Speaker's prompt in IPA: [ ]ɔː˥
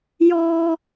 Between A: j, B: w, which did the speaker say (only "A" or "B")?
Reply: A